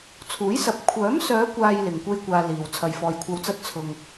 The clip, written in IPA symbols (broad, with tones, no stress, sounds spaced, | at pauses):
t͡sʰ uː˨˥ j s ɐ˨˥ p̚ kʷʰ œː˨˥ m s œː˨˧ kʷ aː˨ j l ɪ˨ ŋ kʷ e˥ j kʷ aː˧ l iː˨ w t͡sʰ ɐ˨ j f ɔː˨ j kʷʰ ɐ˧ w t͡s ɐ˥ t̚ t͡sʰ ʊ˧ ŋ